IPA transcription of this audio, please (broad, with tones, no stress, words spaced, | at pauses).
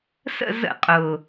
sə̰˦˨zə̰˧˩˧ qʼʊ˨˩